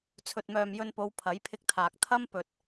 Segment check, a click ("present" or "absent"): absent